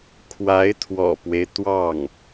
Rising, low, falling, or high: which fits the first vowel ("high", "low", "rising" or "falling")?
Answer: rising